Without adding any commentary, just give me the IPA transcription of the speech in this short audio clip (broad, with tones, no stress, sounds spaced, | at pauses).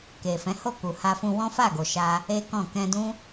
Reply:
k e˨ f ɛ̃˨˦ h o˦˨ k u˨ h a˧ f ũ˧ w ɔ̃˦ f a˦˨ ɡ o˨ ʃ a˧ | e˦ k ɔ̃˦˨ k ɛ̃˧ d ũ˦